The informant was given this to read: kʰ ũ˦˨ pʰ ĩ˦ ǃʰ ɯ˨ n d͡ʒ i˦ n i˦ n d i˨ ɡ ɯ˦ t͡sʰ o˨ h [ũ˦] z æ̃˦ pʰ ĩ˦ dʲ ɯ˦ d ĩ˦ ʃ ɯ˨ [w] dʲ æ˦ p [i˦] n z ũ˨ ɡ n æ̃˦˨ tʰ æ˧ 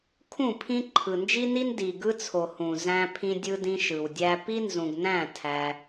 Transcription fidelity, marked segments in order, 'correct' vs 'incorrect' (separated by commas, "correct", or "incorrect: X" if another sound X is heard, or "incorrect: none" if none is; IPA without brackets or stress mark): incorrect: ũ˨, correct, correct